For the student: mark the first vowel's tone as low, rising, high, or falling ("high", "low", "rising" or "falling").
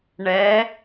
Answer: rising